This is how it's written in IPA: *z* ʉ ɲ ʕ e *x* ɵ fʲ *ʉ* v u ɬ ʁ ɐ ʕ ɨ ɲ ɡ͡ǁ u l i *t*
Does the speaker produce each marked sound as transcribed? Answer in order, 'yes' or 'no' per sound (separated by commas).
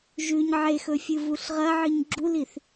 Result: no, yes, no, no